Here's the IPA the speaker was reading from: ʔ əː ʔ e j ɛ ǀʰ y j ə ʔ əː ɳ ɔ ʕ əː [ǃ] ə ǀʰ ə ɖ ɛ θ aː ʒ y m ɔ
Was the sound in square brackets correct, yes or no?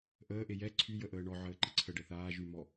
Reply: yes